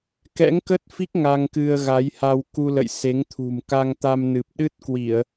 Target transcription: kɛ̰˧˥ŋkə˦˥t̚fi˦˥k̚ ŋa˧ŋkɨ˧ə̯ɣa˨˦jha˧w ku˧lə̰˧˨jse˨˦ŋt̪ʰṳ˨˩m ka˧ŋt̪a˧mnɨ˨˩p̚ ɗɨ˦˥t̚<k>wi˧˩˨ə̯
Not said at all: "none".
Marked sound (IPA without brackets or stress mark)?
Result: k